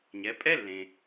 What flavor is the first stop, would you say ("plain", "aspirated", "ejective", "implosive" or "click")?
ejective